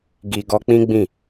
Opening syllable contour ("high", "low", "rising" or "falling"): low